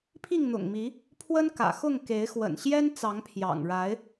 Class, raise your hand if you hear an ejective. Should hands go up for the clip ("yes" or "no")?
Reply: no